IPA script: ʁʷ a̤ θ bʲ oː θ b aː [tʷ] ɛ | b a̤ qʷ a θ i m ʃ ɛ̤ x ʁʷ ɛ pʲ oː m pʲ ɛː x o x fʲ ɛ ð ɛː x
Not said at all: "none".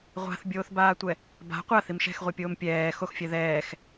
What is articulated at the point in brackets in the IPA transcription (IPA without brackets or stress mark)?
tʷ